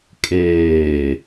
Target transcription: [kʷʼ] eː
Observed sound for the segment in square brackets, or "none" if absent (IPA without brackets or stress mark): kʼ